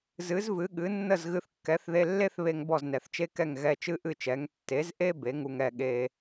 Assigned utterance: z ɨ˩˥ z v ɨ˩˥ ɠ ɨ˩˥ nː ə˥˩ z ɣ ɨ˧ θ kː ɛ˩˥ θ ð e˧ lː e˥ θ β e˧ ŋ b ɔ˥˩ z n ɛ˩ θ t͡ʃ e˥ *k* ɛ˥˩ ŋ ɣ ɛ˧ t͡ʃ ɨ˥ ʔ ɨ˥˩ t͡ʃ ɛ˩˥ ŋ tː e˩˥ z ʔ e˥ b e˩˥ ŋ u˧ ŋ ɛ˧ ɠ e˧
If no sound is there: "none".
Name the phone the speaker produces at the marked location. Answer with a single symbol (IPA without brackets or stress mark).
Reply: k